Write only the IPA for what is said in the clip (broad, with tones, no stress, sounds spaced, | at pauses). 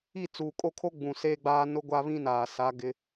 i˦˨ t͡s uː˨ kʼ o˦ kʰ o˦ ɡ͡b ũ˨ s eː˦ ɡ͡b aː˦ n ʊ˦ ɡʷ a˦ β ĩ˦ n aː˨ s a˦ ɡ ɪ˦